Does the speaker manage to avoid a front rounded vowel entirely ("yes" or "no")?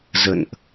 yes